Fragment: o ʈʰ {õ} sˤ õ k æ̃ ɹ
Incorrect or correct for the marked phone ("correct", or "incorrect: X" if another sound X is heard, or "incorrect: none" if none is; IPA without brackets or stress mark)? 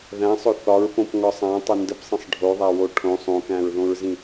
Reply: correct